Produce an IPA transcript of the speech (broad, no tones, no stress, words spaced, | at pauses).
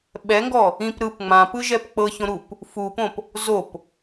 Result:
ɓɛŋɡɔ | ĩp ɾɯp ŋ͡mãpɯʒɛp k͡pɤçõɾup | fupõp | zop